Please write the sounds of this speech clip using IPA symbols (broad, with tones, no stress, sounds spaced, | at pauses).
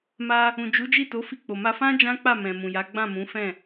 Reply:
m a˧ | ũ˨ d͡ʒ u˨˦ d͡ʒ i˦˨ t o˨˦ f i˦˨ k͡p o˨ m a˧ f ã˦ d͡ʒ ã˦ k͡p a˦˨ m ɛ̃˨ m ũ˨ j a˨˦ ɡ͡b ã˦˨ m ũ˨˦ f ɛ̃˦˨